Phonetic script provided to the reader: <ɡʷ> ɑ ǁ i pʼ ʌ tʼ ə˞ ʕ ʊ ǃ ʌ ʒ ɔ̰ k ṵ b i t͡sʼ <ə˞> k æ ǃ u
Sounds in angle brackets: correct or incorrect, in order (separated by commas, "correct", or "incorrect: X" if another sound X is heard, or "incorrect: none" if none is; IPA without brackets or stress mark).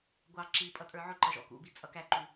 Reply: correct, incorrect: ʌ